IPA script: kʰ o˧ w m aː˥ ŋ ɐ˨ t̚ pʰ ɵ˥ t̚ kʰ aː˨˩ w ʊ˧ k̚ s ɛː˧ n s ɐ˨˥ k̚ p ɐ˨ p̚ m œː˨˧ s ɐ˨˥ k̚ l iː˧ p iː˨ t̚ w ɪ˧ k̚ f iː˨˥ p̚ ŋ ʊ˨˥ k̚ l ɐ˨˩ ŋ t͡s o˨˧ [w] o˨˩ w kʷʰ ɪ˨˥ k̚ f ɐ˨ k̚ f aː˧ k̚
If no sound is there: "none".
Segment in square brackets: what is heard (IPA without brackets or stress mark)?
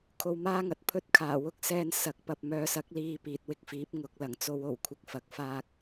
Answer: w